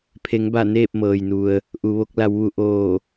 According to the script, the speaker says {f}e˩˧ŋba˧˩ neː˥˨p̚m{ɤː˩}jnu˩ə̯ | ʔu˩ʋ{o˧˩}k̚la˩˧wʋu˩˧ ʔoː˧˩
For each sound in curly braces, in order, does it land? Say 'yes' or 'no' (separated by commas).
no, yes, no